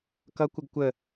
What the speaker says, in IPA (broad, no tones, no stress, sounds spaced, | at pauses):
k ʌ kʷ ə ɡ kʷ ə